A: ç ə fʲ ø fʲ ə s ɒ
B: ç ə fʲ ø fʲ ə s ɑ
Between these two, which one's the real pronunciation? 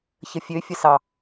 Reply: B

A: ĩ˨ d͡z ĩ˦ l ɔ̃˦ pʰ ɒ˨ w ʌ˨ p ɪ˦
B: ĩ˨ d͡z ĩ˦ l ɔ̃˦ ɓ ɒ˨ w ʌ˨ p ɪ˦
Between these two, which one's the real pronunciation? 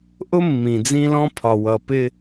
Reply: A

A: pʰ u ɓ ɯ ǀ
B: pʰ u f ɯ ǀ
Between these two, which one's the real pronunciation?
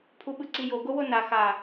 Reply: A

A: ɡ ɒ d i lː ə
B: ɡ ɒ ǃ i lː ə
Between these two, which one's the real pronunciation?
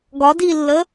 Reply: A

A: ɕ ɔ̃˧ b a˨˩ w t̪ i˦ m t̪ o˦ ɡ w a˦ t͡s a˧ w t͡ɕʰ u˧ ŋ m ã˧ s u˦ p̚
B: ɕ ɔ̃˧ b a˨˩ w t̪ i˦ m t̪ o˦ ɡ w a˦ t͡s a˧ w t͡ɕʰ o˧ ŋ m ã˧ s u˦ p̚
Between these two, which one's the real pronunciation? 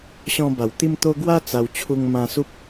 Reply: A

